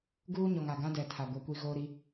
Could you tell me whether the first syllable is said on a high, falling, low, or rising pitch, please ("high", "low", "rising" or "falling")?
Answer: high